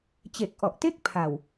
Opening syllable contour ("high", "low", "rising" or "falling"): low